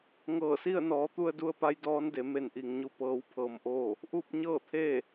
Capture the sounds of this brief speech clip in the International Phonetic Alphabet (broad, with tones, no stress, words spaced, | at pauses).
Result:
ŋɤː˧˩si˥˨ə̯nɔː˩˧t̪u˧ə̯ du˧ə̯pa˧˥j dɔː˧˥nde˩˧ me˧˩nʔi˩ŋɲu˧˩ pɤː˧˥wpʰɤː˧mʔoː˥˨ | ʔu˥˨p̚ɲɤː˥˨t̪ʰeː˥˨